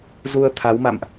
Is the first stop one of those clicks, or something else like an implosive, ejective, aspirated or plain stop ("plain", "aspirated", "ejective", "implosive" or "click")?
aspirated